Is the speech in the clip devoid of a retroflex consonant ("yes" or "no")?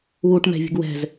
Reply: no